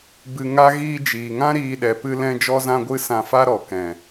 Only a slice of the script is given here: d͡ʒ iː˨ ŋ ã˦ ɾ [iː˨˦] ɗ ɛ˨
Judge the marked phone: incorrect: iː˧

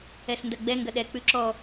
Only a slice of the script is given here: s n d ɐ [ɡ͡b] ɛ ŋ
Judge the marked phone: correct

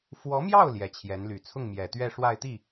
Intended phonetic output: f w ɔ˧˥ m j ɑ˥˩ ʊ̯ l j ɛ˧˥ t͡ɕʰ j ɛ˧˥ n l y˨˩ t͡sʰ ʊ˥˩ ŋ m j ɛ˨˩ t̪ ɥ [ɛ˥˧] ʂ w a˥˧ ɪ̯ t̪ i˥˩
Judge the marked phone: correct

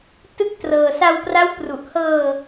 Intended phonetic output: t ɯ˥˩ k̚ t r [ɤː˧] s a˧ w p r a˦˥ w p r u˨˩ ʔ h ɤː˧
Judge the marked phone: correct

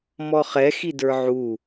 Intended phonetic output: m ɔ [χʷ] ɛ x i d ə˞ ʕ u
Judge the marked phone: incorrect: χ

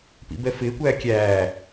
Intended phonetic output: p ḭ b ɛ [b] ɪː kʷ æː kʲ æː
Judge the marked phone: incorrect: f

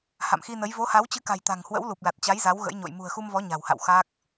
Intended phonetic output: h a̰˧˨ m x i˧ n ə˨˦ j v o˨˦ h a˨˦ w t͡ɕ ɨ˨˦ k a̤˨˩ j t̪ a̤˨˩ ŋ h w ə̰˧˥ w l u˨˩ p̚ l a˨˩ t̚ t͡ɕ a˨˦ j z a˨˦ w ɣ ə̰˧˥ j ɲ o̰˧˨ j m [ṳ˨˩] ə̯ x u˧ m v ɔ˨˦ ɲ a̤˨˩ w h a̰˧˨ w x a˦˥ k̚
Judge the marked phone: correct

